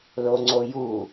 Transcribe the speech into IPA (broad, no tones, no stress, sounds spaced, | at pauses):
l o ŋ͡ǀ o j u